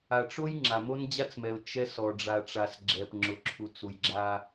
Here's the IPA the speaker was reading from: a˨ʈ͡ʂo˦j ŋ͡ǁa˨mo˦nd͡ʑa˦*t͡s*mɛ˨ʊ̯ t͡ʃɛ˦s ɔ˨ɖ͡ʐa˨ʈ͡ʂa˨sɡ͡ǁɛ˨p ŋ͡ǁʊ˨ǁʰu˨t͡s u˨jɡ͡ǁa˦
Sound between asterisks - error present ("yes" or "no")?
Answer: no